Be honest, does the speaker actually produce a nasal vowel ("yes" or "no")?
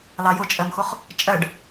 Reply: no